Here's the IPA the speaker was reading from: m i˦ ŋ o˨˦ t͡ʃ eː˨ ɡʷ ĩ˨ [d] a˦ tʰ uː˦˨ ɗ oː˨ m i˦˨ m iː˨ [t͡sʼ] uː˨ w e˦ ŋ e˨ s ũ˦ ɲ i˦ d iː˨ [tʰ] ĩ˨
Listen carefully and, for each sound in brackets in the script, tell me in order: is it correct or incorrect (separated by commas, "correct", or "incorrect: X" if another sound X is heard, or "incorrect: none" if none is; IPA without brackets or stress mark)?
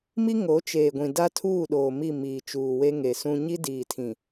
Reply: correct, incorrect: t͡ʃ, correct